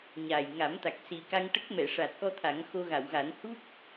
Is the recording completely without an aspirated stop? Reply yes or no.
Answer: no